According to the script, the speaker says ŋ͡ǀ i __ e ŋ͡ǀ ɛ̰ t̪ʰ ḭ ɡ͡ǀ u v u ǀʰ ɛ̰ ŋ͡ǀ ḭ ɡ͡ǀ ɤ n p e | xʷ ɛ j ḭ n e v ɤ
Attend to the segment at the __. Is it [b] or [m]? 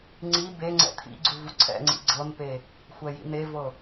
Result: b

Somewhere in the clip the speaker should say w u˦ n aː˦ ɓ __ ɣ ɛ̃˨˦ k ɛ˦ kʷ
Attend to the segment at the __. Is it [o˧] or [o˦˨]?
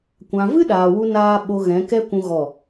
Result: o˧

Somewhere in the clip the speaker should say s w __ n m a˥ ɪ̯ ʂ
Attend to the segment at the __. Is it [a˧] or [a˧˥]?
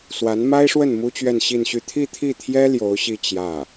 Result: a˧˥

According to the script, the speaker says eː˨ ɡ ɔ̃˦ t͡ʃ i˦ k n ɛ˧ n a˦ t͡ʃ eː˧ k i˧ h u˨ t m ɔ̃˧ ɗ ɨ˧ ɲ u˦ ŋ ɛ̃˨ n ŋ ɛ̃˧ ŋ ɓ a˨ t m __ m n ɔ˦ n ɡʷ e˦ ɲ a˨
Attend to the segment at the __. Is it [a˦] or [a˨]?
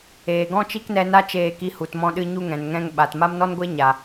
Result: a˦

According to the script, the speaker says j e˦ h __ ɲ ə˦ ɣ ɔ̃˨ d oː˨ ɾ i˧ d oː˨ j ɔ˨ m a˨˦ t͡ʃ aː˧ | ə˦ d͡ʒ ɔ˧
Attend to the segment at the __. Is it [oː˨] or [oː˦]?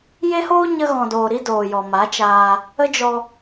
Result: oː˦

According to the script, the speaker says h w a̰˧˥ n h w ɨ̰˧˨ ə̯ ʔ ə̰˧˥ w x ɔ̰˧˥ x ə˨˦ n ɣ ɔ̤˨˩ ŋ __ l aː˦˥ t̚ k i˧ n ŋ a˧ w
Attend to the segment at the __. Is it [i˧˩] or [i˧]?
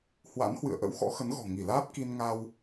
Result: i˧˩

